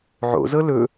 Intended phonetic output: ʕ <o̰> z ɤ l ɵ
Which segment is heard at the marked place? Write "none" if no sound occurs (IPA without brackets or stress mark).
o̰